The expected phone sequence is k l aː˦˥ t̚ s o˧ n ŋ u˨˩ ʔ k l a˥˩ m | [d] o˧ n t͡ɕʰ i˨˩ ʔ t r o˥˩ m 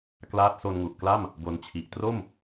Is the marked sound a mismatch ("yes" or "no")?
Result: yes